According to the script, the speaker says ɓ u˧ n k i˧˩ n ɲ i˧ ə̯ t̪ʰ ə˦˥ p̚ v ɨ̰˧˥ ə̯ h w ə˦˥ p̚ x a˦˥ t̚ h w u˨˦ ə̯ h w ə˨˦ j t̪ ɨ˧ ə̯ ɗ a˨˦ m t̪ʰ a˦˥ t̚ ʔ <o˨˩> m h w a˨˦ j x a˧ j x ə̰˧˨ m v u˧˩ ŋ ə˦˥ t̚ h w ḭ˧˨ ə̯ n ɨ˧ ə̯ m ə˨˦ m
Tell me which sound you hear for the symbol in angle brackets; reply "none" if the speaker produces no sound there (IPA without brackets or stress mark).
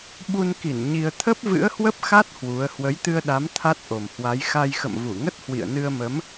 o˨˩